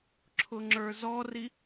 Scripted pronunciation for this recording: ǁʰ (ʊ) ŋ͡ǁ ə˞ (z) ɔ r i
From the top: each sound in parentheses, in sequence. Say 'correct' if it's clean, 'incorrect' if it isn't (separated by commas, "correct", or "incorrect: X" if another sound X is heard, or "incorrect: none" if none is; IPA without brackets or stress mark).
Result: correct, correct